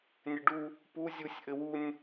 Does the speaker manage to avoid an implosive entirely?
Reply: yes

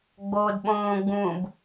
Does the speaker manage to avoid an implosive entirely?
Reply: no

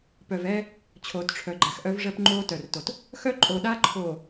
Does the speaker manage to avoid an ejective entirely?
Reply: no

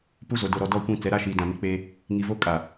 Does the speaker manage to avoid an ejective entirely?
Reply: no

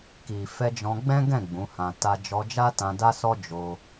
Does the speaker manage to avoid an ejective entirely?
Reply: yes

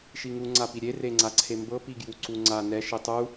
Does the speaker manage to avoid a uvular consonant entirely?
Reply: yes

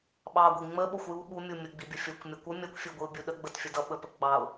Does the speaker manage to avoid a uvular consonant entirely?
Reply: yes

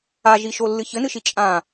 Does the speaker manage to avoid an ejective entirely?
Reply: no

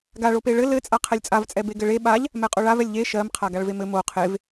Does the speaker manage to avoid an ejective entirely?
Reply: no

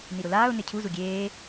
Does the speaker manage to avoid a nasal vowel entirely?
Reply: yes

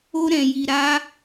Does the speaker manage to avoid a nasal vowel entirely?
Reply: no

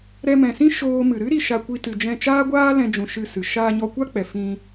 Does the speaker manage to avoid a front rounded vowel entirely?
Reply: yes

